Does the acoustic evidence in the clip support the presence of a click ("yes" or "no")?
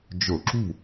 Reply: yes